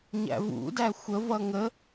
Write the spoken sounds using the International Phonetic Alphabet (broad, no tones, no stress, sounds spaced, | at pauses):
ɲ æ̰ v ṵ d æ xʷ ə v ʌ ŋ ə